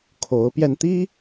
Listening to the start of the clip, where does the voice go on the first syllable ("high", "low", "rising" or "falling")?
rising